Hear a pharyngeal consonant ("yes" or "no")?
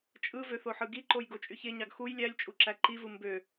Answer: yes